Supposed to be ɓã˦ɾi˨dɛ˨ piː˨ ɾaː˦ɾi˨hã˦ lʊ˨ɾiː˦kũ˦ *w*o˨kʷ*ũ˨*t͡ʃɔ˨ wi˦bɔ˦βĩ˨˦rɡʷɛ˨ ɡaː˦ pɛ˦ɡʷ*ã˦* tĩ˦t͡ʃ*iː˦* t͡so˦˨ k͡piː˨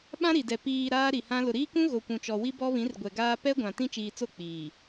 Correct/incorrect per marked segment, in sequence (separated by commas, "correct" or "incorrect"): incorrect, correct, incorrect, incorrect